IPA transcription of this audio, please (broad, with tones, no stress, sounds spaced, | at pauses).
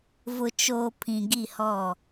v ʊ˨ t͡ʃ oː˨ pʰ ĩ˨ ɡ i˦˨ h ɔ˦˨